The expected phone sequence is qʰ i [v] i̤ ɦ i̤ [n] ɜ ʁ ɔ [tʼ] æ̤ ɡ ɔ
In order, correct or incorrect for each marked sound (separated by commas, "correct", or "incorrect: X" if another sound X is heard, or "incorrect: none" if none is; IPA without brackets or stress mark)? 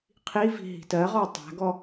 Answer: correct, incorrect: t, incorrect: tˤ